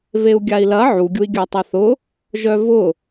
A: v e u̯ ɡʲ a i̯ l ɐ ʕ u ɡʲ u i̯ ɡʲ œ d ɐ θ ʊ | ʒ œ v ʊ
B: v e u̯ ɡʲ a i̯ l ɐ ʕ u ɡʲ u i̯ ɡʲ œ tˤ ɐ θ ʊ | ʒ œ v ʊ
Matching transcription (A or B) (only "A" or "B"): B